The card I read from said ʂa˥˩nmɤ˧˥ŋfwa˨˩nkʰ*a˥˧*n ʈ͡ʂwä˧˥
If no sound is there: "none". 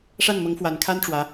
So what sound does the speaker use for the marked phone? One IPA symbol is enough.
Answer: a˥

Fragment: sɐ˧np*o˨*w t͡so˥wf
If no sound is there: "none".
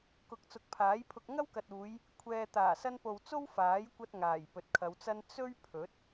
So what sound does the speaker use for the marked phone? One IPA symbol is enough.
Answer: o˨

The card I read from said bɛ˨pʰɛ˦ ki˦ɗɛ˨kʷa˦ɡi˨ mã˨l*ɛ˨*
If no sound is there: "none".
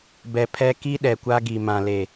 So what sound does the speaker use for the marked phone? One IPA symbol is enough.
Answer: e˨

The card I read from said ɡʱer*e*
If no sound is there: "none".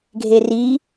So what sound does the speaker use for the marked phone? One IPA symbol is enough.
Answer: i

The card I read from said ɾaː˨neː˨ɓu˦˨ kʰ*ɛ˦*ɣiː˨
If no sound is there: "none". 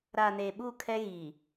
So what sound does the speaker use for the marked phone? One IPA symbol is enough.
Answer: ɛ˦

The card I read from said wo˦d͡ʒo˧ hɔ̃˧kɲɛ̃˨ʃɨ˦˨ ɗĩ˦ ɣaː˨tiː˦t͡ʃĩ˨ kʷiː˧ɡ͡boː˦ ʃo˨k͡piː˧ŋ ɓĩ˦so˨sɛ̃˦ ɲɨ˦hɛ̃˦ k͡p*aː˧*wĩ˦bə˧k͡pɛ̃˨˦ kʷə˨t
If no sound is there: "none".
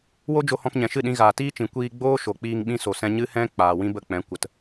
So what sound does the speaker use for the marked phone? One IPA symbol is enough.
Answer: aː˨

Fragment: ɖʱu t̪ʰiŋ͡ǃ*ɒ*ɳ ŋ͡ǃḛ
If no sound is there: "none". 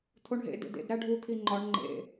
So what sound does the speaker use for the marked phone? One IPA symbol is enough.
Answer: ɒ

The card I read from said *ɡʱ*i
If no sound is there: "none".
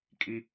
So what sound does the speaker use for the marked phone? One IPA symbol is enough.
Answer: kʼ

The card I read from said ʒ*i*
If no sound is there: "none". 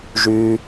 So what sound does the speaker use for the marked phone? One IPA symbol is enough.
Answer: y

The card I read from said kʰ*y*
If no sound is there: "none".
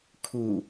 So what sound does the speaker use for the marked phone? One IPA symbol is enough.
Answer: u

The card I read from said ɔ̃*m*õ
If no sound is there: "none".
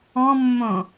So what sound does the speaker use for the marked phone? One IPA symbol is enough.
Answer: mː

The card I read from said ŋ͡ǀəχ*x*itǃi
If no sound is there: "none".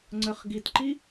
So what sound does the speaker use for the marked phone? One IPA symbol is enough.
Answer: ɡ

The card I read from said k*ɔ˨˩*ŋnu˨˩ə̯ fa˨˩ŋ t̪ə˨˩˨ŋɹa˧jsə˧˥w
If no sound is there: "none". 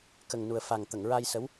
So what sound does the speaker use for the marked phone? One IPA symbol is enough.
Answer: ə˨˩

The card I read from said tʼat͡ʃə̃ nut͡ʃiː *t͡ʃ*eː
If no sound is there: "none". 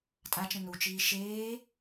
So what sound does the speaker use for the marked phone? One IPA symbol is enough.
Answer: ʃ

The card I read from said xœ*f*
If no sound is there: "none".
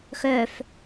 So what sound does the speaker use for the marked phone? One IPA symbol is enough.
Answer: f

